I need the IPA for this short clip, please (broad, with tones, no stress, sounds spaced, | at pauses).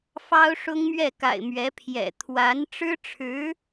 f ɑ˥ ʊ̯ ʂ ʊ˥ ŋ m ɥ ɛ˥˩ k a̰˨˩ ɪ̯ m ɥ ɛ˧˥ pʰ j ɛ̰˨˩ t̪ʰ w a˧˥ n ʈ͡ʂ ɻ̩˥ ʈ͡ʂʰ ɻ̩˧˥